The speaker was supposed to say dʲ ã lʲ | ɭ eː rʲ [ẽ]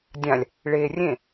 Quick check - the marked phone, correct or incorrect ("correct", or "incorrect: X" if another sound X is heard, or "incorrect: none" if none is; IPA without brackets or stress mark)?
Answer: correct